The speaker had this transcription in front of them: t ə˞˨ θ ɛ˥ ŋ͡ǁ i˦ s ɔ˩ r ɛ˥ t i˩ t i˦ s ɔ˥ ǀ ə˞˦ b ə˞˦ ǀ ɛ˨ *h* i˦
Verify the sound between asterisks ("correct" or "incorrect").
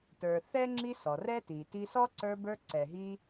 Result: incorrect